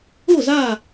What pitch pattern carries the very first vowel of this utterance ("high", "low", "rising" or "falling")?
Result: falling